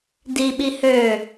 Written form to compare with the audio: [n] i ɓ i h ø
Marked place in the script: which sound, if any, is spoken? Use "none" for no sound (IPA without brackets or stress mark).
d